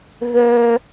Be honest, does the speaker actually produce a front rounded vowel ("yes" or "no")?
yes